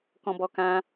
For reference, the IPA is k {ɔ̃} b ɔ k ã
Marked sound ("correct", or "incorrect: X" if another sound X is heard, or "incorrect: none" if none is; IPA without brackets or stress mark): correct